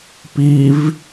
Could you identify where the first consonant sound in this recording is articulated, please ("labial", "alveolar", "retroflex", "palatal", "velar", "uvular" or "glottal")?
labial